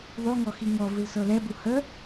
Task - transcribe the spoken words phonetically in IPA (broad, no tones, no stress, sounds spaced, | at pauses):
ðˤ o ŋ ɔ x i ŋ ɔ v ɨ l s ɤ l ɛ b u h ə